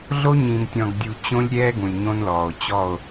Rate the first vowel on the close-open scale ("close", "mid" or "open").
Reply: mid